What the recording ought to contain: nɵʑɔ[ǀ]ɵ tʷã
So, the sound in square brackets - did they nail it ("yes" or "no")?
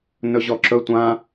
no